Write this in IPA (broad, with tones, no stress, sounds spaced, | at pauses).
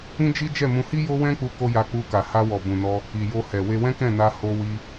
ĩ˦ d͡ʒ i˦ d͡ʒ ɛ˦˨ m ũ˧ h i˦ j o˦ w ɛ̃˦ k͡p u˧ k o˧ j a˧ k͡p u˧ k a˨ h a˧ w ɔ˨ b ũ˨ n ɔ˧ | i˨ j o˧ h ɛ˨ w e˧ w ɛ̃˦ k ɛ̃˦˨ n a˧ h o˧ w i˧